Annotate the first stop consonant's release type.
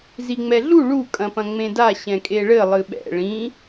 ejective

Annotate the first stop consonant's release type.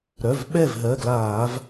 implosive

